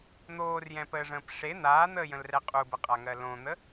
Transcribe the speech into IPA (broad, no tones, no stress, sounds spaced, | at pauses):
n̪ oː r j ɛ̃ p əː ʐ ə̃ː p ʂ e n̪ aː n̪ əː j ə̃ l r ɛ qʼ u b ə qʼ a ŋ ɜ l õ n̪ ə